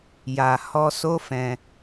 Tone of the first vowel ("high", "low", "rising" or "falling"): low